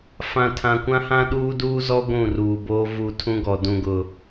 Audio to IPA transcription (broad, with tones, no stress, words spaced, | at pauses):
fã˨tʰã˨kʷã˦hã˦ ɗuː˦duː˦zɔ˦ ɡʷũ˦˨ruː˨boː˦ vu˨ tʰũ˦ɡɔ˨ dũ˨ɡʊ˨